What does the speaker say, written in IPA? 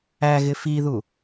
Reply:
æ ɣ ɪ f i ð u

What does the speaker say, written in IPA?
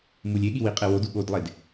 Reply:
m u lʲ e ɠ i w i qʼ e w o d u ɠ o d lˠ e d

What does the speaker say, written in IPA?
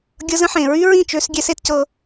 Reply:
ɡʲ ɤ˦ z ə̃˦ ħ ẽ˨ ɹ y˦ ɹ ĩ˦˨ t͡ʃ ø˦ s ɡʲ ɛ˦ s e˦ t c ɤ˦

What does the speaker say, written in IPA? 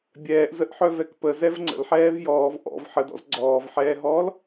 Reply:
bʲ ɛː ʔ z ə ʔ ħ œ v ɛ k p ə z ɛ v ŋ͡ǀ ə̰ l ħ ɛː v j ɔː v ʔ ɔ̰ v ħ ə d ɔ̰ z ɡ͡ǀ ɔː v ħ ɛː ɦ ɔː l

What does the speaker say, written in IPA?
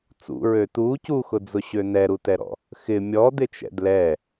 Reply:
t͡s ṵ ɹ ø t u c u x ʊ d͡z ʊ ɕ ø n ɛ ɾ u t ɛ ɾ ɔ̰ | x ɪ mʲ ɔ d ɪ t͡ʃ ɛ̰ d l ɛ

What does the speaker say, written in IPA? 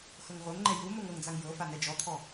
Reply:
x ɤ ŋ ʁʷ ɤ ŋ ŋ͡ǃ ɛ j u m o ŋ ɤ ŋ d͡z a ŋ j ɤ f a n ɛ d͡ʒ ɔ t̪ʰ ɔ

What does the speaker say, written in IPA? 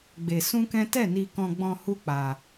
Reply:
ɡ͡b e˧ s ũ˦ k ɛ̃˦ t ɛ˦˨ n i˧ k ɔ̃˧ ɡ͡b ɔ̃˧ h u˦ k͡p a˧

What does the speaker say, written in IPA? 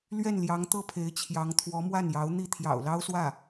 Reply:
l ɥ ɛ˥˩ n l j ɑ˧˥ ŋ t̪ ɤ˥˩ pʰ e˧˥ ɪ̯ t͡ɕʰ j ɑ˧˥ ŋ t̪ʰ w ɔ˧˥ m w a˥˩ n j ɑ˧˥ ʊ̯ n̪ i˥˩ t̪ʰ j ɑ̰˨˩ ʊ̯ l ɑ˥ ʊ̯ s w ä˥˩

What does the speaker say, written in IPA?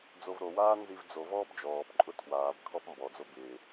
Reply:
d͡z o v ɾ o w aː n z i v d͡z o v ɔː b d͡ʒ ɔː p ǃʼ ʊ tʰ w aː b kʰ ɔ p m b ɔ d͡z o b ɪː

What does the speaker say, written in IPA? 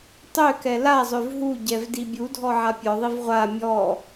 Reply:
tˤ ø k ɛ l a zˤ ø v ɦ u ɟ ɛ v d i bʲ u dʱ ɔ ʕ a pʲ ɔ ðˤ i v ʁʷ a mʲ ɔ

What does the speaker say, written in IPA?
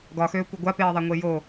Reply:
ɡ ɒ x øː kʷ ɪ ɡʷ a p eː ðˤ a ŋʷ e j o

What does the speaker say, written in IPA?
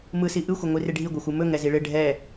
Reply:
m ɯ s i ʔ ɯ xʷ ɪ ŋʷ i r ɪ ɖʱ i ɡʷ ɛ xʷ ɯ m ɵ ŋ ɛ z i ɭ ɪ ɖʱ ɛ

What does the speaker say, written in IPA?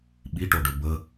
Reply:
ɓ i ʈ o ɖ ɵ b ə

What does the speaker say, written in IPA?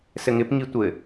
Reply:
s ɘ ŋ ɪ p ŋ i tʷ ɘ

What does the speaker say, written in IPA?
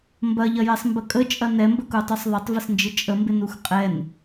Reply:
m b ɐ ʎ ɐ j ɛ sˤ m b ə kʼ ə t͡ʃʼ ɐ n ɛ m b ə k u tˤ u sˤ ðˤ ɐ tˤ v ə s n d͡ʒ ɪ t͡ʃʼ ə m b ɪ n u x qʼ ɛ n

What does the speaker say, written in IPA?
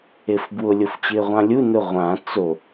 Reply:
e f b w ʊ lʲ o f t͡ɕ ɪː ʁʷ ã lʲ u n ʊ ʁʷ ã t͡s o

